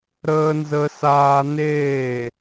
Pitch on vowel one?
high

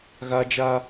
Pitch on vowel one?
high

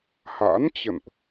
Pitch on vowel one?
rising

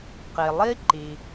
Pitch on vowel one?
low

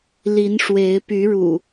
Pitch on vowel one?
rising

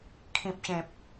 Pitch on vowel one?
low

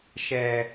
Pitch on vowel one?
low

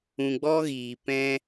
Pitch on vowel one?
low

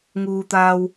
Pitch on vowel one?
low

